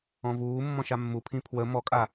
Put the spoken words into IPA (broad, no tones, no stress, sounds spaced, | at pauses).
ɔ̃ v uː mː ɔ̃ ʃ a mː u pʰ ĩ pʰ w ə m ɔ kʼ a